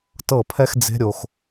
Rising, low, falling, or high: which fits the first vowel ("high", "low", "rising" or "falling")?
falling